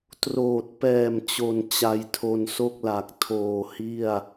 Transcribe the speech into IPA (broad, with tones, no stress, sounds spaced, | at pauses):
t r oː˨˩ t̚ p ɛː˨˩ m t͡ɕ o˨˩ n t͡ɕ a˧ j tʰ o˧ n s o˥˩ k̚ l a˨˩ k̚ tʰ oː˨˩ h i˥˩ a̯